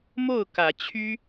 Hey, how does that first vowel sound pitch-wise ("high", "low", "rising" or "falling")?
falling